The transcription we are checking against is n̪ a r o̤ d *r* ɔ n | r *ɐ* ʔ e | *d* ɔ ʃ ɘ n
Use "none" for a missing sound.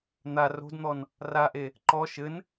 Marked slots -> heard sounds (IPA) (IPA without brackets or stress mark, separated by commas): n̪, a, ǃ